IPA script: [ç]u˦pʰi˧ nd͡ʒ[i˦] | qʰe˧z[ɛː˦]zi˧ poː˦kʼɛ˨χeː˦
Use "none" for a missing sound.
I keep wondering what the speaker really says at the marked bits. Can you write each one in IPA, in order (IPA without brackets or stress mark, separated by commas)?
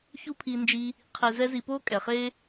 ç, i˦, ɛ˦